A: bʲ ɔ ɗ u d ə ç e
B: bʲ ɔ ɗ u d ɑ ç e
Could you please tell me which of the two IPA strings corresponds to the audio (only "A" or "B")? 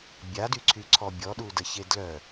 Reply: A